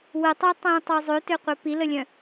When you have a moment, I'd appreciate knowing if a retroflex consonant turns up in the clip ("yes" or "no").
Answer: no